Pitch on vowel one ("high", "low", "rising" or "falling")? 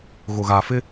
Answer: low